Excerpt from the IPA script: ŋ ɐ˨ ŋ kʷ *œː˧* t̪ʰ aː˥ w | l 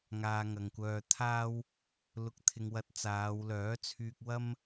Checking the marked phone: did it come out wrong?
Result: no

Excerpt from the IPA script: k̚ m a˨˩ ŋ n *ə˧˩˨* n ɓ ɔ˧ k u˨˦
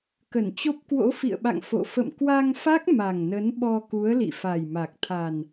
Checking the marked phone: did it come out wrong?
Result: yes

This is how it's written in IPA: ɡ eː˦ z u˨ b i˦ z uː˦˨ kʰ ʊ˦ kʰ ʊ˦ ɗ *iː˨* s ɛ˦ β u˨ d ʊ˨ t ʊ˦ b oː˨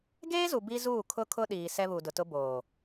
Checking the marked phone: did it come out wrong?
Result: no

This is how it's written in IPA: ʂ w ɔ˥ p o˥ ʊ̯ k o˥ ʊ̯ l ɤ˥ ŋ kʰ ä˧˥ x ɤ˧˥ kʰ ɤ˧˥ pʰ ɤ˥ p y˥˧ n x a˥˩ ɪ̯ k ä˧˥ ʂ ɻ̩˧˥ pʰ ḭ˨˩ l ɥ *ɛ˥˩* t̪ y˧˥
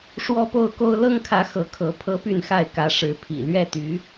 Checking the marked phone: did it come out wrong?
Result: no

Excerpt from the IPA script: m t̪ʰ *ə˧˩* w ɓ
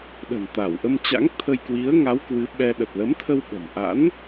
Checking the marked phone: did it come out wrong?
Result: yes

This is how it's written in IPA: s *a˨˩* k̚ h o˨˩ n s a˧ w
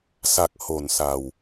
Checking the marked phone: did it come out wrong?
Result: no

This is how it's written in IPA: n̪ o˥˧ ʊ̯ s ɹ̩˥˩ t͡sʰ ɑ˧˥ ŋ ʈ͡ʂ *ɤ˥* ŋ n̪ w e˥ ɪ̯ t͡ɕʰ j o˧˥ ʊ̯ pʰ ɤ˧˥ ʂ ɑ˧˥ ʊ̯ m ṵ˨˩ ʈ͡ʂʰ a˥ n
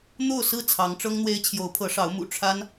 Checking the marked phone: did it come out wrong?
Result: no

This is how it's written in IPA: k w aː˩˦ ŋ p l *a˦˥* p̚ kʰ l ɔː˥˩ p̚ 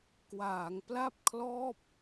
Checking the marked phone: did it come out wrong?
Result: yes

